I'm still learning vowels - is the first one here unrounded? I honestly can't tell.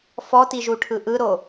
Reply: no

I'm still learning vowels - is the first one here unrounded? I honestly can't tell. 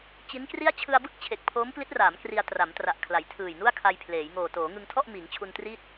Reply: yes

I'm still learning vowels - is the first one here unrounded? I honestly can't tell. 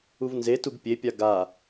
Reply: no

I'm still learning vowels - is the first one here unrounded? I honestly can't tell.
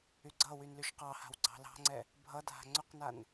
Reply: no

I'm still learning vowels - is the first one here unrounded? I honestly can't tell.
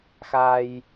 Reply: yes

